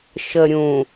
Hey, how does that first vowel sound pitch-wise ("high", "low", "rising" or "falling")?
low